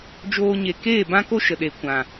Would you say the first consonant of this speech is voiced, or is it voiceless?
voiced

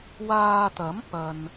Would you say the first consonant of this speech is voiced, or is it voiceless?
voiced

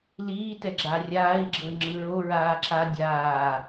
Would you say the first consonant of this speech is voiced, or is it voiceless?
voiced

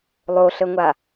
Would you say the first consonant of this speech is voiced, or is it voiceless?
voiced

